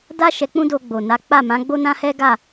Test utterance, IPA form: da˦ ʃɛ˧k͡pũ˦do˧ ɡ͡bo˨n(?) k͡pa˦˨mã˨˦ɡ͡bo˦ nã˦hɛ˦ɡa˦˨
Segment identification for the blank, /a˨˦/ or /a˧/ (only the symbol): a˨˦